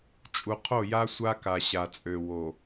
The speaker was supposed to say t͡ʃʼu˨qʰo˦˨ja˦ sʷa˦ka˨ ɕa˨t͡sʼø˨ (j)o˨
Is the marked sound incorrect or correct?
incorrect